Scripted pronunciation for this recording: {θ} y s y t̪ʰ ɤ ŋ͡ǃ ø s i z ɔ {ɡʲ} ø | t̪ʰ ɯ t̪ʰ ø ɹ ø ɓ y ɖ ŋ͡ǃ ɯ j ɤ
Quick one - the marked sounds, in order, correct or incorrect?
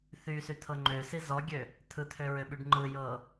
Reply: correct, correct

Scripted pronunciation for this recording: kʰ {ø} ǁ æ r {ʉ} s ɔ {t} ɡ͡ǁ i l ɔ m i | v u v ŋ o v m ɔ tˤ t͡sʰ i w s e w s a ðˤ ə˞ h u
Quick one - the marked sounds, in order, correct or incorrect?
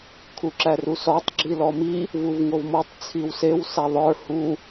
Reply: incorrect: u, incorrect: u, incorrect: tˤ

